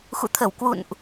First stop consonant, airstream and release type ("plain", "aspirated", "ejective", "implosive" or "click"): aspirated